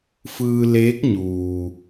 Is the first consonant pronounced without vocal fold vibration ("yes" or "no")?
yes